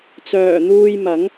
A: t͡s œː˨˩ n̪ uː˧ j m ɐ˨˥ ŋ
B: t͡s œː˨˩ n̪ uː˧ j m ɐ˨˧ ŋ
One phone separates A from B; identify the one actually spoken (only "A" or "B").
A